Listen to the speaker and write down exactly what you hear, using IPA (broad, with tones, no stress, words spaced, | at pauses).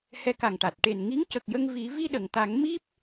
hɛ˧ka˨˩ŋʈa˨˩t̚ ʈe˨˩n ŋi˧˥ŋcə˨˩k̚jə˧ŋ vi˨˩˦ vi˧ɗə˨˩˨ŋt̪a˨˩˦ŋ mi˦˥p̚